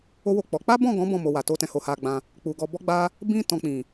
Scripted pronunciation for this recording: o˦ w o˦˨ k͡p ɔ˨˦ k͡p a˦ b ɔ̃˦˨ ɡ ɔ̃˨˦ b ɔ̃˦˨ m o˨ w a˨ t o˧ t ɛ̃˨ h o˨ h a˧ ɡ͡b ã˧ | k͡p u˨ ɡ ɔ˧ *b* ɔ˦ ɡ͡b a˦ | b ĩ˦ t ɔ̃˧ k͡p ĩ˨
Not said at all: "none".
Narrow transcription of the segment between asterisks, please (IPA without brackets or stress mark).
b